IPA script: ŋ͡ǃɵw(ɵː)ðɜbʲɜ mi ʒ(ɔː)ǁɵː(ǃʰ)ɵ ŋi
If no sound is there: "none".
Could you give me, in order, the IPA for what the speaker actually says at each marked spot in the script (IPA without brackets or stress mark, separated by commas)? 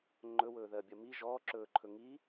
ɵː, ɔː, ǃʰ